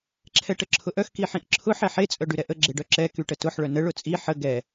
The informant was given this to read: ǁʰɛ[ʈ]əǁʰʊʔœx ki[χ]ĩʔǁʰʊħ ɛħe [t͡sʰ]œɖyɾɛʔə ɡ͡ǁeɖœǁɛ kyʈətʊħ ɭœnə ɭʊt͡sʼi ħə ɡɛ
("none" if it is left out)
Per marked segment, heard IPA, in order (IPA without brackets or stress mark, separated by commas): ʈ, ħ, t͡sʼ